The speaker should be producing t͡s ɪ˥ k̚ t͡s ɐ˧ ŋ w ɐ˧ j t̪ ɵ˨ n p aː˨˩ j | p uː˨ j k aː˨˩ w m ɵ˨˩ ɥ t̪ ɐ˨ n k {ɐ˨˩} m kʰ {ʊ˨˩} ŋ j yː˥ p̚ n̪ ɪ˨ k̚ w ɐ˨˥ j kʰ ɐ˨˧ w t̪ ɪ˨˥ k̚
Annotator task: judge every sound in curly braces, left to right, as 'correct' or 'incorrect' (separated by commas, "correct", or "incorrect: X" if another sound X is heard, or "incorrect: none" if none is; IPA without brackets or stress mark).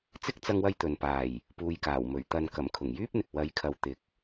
correct, correct